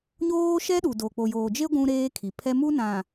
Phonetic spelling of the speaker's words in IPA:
ɲ oː˦ ʃ ɛ˦ ɗ u˨ d o˨ k͡p o˨ j oː˨ d͡ʒ e˦ ɡʷ ũ˦ ɾ eː˦ kʰ i˨ pʰ ɛ˦ m u˦ n ã˨

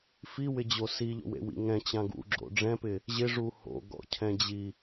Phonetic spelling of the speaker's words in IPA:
f i w ɪ d͡ʑ o s i ʎ o̰ w ḛ w ḭ ŋ ɛ̃ t͡ɕ ã ɡ ṵ ɡ͡ǁ o̰ ɖ͡ʐ ɛ̃ p ɪ | ʑ ɪ ʐ u h o̰ ɡ ɔ̰ cʰ ɛ̃ d͡ʑ i

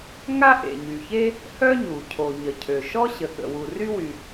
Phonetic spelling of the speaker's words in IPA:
ŋ a˥ ʔ ḛ˩ ɲ y˩ ç e˥ | h œ˥ ɲ u˩ cʰ o˩ ɲ ə˩ cʰ ø˩ ʃ ɔ˥ ɕ ə˩ k ə̰˩ w u˩ r y˥ w y˩

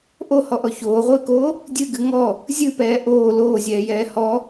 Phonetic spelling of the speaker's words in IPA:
ʔ o h ɔ ʔ ɔ ç oː ʁʷ ɨː k oː | dʲ ɨ ɡ ɨ ŋ ɔ | zʲ ɨ p ɛː ʔ oː l oː zʲ ɛː j ɛː h ɔ

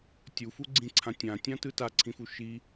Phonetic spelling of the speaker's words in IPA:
tʲ u f u ɡ͡ǀ ĩ ǀʰ ã tʲ ã tʲ ã t ɯ t a ǀʰ ĩ f u ʃ i

